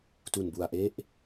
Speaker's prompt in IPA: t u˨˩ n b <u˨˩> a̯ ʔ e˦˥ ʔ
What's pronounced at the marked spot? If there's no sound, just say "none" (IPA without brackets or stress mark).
u˨˩